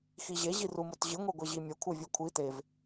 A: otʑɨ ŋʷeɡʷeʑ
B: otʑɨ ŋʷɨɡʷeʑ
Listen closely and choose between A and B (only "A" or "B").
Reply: A